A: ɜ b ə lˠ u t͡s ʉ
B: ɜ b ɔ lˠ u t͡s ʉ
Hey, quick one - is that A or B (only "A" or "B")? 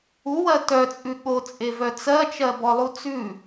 B